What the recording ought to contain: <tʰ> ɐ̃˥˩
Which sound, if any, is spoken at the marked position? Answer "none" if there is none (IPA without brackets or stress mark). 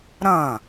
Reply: ɾ